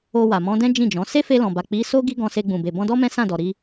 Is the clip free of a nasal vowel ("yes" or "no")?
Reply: no